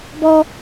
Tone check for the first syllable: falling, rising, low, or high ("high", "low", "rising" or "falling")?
high